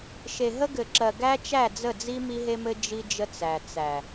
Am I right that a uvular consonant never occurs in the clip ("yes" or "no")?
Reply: yes